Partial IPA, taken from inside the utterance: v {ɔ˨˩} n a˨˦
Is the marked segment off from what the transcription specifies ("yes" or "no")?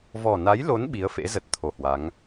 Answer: no